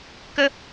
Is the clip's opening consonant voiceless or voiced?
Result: voiceless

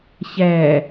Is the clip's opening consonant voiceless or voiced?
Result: voiceless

